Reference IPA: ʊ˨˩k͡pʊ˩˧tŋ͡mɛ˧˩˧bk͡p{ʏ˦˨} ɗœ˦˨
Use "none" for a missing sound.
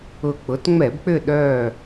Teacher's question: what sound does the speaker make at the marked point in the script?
ʏ˦˨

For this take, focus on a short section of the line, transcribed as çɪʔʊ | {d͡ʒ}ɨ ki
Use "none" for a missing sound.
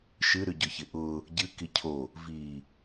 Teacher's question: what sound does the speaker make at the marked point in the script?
ɟ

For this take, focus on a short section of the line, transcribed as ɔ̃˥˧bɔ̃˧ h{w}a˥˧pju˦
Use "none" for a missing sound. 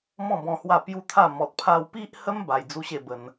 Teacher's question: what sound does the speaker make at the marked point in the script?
w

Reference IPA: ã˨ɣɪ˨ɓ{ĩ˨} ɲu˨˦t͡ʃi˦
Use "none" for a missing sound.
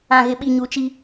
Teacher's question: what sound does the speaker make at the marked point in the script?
i˨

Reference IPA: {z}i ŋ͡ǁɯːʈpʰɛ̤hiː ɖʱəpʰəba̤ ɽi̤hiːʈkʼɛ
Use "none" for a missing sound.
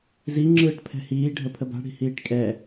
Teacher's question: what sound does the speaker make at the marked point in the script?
z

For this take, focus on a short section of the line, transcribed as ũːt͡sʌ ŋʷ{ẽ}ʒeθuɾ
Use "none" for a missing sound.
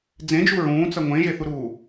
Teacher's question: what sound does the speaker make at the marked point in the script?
ẽ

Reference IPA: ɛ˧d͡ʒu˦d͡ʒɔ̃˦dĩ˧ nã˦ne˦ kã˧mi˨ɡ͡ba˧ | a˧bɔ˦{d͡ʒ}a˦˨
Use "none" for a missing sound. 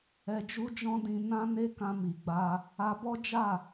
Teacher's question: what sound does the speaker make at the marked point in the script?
d͡ʒ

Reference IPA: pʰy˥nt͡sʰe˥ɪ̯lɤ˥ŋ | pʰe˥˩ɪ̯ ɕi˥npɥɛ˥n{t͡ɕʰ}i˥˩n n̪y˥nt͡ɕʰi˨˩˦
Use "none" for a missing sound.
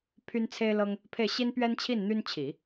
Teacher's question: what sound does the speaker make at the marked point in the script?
t͡ɕʰ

